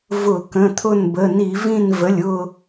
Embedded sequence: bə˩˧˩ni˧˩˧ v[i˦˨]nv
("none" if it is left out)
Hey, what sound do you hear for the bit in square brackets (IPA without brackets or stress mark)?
ĩ˦˨